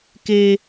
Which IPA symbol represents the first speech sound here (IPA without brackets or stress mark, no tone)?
k